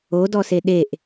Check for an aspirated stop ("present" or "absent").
absent